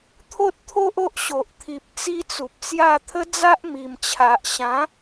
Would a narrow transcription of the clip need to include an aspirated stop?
yes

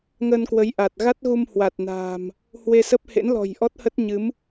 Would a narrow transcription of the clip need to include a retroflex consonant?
no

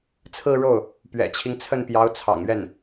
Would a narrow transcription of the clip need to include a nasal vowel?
no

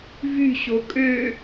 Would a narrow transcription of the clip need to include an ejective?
yes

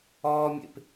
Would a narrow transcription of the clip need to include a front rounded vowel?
no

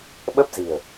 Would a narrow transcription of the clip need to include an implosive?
yes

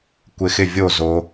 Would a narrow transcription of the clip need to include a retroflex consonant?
no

